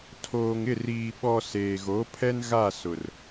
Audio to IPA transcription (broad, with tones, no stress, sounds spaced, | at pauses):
tʰ oː˨ ŋ ɪ˦˨ r iː˨ ɓ ɔ˨ s eː˨ ɣ o˨˦ pʰ ɛ˦ n ɣ a˦˨ s ʊ˨ r